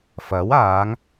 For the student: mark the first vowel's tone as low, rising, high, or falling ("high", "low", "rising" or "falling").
rising